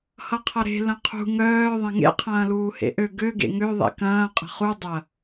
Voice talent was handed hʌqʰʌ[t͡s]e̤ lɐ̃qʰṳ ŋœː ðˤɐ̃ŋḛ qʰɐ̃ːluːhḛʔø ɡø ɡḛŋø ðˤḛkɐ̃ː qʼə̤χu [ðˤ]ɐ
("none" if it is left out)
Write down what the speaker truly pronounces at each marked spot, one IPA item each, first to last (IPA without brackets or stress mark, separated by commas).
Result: ɾ, dˤ